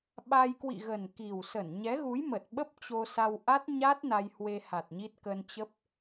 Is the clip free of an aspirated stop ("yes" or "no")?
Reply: yes